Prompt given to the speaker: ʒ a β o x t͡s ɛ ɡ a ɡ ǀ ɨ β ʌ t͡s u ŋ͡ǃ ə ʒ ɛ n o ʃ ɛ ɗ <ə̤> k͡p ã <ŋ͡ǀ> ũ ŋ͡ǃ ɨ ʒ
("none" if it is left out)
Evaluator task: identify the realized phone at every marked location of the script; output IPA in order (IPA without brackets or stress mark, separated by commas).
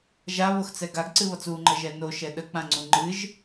ə, ŋ͡ǀ